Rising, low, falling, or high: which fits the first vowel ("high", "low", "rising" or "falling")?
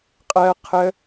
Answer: high